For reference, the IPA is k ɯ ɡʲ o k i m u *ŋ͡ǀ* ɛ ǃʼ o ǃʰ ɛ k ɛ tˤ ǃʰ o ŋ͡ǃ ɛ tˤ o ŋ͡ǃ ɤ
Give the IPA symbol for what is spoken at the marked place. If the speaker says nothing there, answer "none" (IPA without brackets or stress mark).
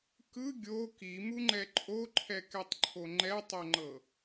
ŋ͡ǃ